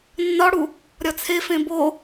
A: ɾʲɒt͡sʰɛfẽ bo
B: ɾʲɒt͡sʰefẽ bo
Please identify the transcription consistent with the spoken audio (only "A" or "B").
B